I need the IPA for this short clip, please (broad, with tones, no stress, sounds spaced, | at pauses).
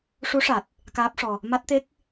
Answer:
ʂ u˧˥ ʂ a˨˩ t̚ | k aː˦˥ p̚ ʂ ɔ˧ | m a˦˥ t̚ t̪ e˦˥ k̚